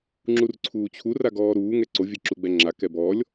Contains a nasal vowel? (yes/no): no